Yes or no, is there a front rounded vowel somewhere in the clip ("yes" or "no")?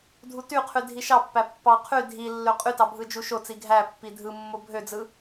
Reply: yes